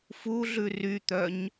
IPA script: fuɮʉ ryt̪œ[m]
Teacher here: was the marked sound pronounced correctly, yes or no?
no